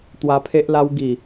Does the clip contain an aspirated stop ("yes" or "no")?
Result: yes